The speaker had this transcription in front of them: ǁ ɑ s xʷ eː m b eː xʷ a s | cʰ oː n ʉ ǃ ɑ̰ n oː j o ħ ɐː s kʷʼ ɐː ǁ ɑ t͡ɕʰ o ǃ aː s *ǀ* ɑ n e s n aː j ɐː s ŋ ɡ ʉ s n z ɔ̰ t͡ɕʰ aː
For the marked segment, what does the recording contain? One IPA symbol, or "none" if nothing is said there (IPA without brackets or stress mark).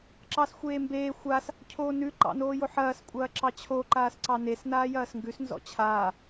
ǀ